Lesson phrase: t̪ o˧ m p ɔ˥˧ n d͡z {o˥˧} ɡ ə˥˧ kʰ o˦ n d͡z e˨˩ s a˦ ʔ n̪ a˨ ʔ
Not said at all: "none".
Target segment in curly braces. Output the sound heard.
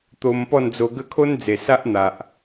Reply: o˧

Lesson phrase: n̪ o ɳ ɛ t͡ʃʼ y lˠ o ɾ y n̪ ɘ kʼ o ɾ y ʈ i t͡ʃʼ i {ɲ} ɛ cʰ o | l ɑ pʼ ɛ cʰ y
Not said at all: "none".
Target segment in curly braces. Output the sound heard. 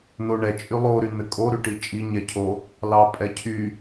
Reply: ɲ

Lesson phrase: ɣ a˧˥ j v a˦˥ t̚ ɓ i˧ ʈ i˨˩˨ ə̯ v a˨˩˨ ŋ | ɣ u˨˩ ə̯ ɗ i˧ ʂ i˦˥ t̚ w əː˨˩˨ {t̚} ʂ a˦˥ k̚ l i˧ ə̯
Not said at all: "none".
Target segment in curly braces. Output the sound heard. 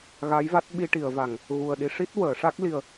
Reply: none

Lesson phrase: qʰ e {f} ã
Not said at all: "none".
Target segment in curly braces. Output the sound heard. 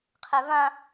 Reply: v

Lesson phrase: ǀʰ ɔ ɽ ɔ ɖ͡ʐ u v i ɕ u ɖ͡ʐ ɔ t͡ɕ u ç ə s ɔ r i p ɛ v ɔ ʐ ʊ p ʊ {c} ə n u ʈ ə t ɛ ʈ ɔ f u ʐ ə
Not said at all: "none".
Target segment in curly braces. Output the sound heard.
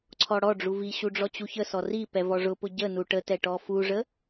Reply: ɟ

